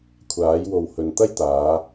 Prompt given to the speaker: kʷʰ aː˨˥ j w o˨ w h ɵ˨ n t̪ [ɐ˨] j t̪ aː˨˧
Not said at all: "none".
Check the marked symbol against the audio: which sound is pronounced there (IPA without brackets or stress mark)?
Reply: ɐ˥